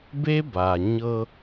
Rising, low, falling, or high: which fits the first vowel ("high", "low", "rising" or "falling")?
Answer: high